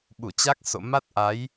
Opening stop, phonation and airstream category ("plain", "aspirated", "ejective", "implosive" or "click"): implosive